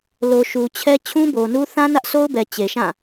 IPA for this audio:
l o˨ ʃ u˨ t͡ɕʰ ɛ˦ t͡ɕʰ ũ˦ b o˨ n u˦ θ ã˦ n ä˦ ʔ sʰ o˦ ʊ̯ b ɛ˨ t͡ɕ e˨ ʃ ã˦˨

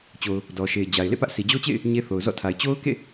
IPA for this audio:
t͡ɕ o˨ ʊ̯ | d ɔ˨ ʃ e˨ ɪ̯ d͡ʑ a˨ ɪ̯ l ḛ˦˨ p ä˦ ʔ s i˨ d͡ʑ o˦ t͡ɕ ḛ˦˨ ɪ̯ | ɲ e˦ θ o˨ ʊ̯ z ɔ̰˦˨ tʰ a˨ ɪ̯ t͡ɕ o˦ ʊ̯ k ḛ˦˨

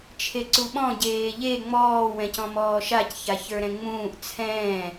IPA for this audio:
t͡ʃʰ e ǀ u ɓ ɔ̃ ɟ eː ʎ e ŋ͡m ɔː w ɛ̃ c ɔ̃ m ɔː ʃ a c ç a ç ə˞ ɾ ɛ̃ ŋ͡m ũː ʔ t͡sʰ ɛ̃ː

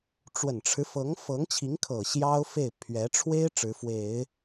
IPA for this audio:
ʈ͡ʂ w ə˨˩ n ʈ͡ʂʰ ɻ̩˦ f ɤ˧˥ ŋ f ɤ˧˥ ŋ t͡ɕʰ i˧˥ ŋ kʰ ɤ˨˩ ɕ j ɑ˥ ʊ̯ f e˥˩ ɪ̯ pʰ ɥ ɛ˧˥ ʈ͡ʂʰ w e˥ ɪ̯ ʈ͡ʂ ɻ̩˧˥ f w e˨˩˦ ɪ̯

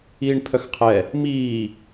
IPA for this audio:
iː ɳ pʰ œ x qʰ ɛ | m iː

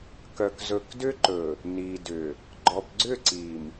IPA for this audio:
k œ˨ k z ɵ˨ k d ʏ˦ ǃ ɵ˨ | n i˨ d ʏ˨ | ɡ͡ǃ ɔ˨ p ɡ͡ǀ ʏ˦˨ ǀ i˨ m

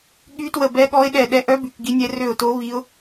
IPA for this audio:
ɠ y˦˥ t w ə˦˨ b ɛ˦˥ ɠ ɔ˦˥ ɪ̯ ɗ ɛ˦˨ ɗ ɛ˦˥ ʔ œ˦˥ b y˦˨ k ɡ i˦˥ nʲ ɛ˦˥ r ø˦˨ ʊ̯ t o˦˥ β i˦˥ ʊ̯

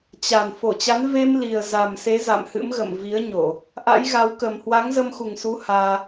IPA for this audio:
t͡ɕ a˨˩ n f o˧˩ t͡ɕ a˨˦ n v e˧ m l i˨˩ ə̯ z a˨˩ m s e˨˦ z a̰˧˨ m h ɨ̰˧˥ m ɣ ə̰˧˨ m v i˨˦ ə̯ ɲ o˧˩˨ | ʔ a̰˧˥ j ɣ a˨˦ w k ə˨˩ m h w a˨˦ ŋ z ə˧ m x u˨˩ ŋ s u˨˦ h aː˧

